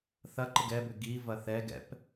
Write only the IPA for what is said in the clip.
θ ɐ ǃ ɪ ɡ ɛ b ʏ ɡ i v ɐ θ ɛ ɡ ɛ̰ p

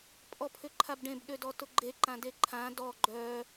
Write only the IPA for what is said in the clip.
pʼ ɔ pʰ ʏ ǃʰ a b ɖ ẽ b ɗ ø d ɔ t ʊ ɡ͡ǃ e ǃ ã d e ǃʰ ã d ɔ ɡ͡ǃ œ

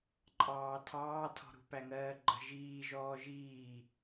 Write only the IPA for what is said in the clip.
ǃʼ ɑː tʰ ɑː tʰ ɔ̤ ɾ ṳ p æ ŋ ɜː ɡ͡ǃ ə̤ ʒ iː ʒ ɔː ʒ iː

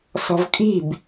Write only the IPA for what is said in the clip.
s ɔ̤ v kʼ i̤ b

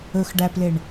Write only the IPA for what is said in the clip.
ɵ x ɖ æ p l e ɳ

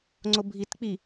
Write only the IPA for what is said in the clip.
ŋ͡ǀ o bʱ i t k͡p i

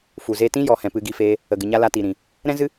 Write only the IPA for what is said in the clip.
f u˨ z eː˧ t ĩ˦ j ɔ˨ h ɛ̃˧ p ɨ˧ ɡ i˧ f eː˧ | ə˨ ɡ ɨ˨ ɲ a˧ l a˧ t i˨ ɾ ĩ˨ | ɾ ɛ̃˦ z ɨ˦

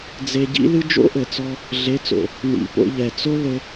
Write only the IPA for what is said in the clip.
d͡z e˧ ɟ ḭ˦ l ɨ˦ d͡ʒ o̰˦ ʔ ɘ˨ t͡s ɔ˧ | ɮ e˨˦ t͡s o̰˨ | n ḭ˨ p o̰˧ ʎ ɛ˨ t͡s o˦ l ɘ˧

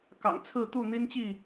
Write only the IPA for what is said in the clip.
k ɑ̰˨˩ ŋ t͡sʰ ɹ̩˥˨ t̪ u˥˨ n̪ i˦ n t͡ɕ i˥˨

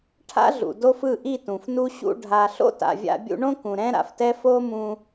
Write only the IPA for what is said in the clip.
ʈʰ a̰˦ ɮ ṵ˨ d o˦ f ɯ˦˨ ʔ i˦˨ t ũ˨ f n u˦ ɕ ṵ˧ ɖʱ a˧ ɬ o̰˦ t a̰˨ vʲ a̰˧ bʲ ṵ˧ ɳ õ˦ k ũ˨ ɾ ɛ̃˦ ɾ a̰˨ f t ɛ˦ f o˦ m ũ˧

